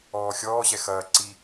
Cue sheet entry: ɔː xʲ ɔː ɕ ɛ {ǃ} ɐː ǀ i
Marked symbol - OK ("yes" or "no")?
no